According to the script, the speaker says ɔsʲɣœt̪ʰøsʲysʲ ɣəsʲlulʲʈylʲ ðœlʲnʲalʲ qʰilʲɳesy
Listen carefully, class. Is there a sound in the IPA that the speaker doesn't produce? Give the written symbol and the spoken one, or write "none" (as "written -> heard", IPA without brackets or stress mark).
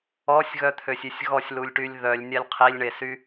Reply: ə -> ɔ